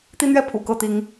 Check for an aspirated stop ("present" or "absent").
present